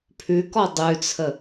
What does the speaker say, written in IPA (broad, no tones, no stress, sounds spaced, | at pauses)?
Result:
pʰ ʉ k ɔ dˤ ʉ t͡sʰ ə